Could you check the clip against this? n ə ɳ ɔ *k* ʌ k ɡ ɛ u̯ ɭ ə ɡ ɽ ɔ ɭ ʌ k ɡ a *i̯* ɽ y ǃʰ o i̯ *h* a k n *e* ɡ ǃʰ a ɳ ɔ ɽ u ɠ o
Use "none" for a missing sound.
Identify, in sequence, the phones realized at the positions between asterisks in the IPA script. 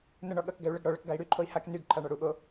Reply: ɠ, i̯, h, y

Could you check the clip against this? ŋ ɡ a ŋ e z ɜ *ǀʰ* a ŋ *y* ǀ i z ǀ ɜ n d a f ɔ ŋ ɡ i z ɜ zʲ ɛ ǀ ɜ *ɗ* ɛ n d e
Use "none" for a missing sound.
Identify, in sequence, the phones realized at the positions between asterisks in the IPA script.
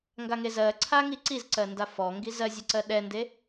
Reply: ǀʰ, i, ɗ

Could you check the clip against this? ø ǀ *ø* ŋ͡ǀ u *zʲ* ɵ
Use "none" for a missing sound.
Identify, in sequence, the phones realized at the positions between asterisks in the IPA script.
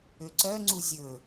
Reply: œ, zʲ

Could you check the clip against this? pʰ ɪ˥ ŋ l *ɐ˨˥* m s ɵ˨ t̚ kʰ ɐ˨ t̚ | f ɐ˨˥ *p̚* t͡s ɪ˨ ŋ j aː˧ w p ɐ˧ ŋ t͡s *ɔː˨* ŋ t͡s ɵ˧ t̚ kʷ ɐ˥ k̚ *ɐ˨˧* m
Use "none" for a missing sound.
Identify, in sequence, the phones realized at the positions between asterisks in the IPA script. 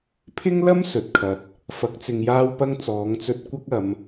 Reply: ɐ˥, k̚, ɔː˨˧, ɐ˨˧

